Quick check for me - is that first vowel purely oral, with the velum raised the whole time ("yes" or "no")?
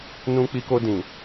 no